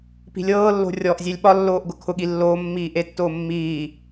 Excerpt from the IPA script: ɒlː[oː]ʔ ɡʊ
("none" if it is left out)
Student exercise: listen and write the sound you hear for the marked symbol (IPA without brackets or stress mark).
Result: oː